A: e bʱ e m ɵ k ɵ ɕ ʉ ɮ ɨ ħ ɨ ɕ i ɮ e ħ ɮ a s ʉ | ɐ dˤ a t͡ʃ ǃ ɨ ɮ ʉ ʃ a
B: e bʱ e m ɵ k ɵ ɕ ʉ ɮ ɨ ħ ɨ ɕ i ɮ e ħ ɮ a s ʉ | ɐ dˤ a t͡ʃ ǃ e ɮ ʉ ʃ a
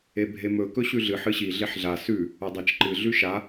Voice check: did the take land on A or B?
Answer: A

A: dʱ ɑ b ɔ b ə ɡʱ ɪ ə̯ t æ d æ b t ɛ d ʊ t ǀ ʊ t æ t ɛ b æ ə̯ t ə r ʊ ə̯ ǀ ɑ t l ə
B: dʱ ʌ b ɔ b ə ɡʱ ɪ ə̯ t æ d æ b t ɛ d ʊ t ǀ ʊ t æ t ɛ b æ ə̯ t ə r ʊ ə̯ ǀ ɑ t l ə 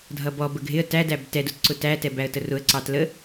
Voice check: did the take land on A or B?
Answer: B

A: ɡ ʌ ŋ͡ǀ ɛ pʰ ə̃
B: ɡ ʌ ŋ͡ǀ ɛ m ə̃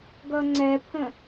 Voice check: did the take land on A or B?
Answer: A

